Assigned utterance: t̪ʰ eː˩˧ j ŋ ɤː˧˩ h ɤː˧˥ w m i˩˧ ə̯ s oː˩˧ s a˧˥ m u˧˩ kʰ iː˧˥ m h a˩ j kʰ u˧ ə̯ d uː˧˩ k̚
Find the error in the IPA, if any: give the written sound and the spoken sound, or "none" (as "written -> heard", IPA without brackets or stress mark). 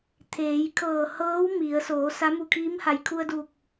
ŋ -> kʰ